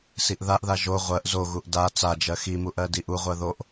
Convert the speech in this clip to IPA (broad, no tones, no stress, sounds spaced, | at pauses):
s i ʔ ð a ʔ ð a ʒ o ʁʷ ɜ ʔ z o ɣ u ʔ d a t͡s a d͡ʒ ɜ x i m u ʔ ɜ d i ʔ u ʁʷ ɜ ð o ʔ